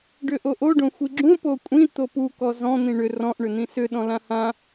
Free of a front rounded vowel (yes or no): no